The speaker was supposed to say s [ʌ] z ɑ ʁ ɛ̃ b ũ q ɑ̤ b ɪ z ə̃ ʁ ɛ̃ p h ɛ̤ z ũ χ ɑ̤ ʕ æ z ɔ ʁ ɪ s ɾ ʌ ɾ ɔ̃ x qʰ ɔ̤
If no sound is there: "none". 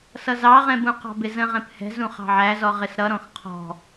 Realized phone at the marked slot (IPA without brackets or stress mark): ʌ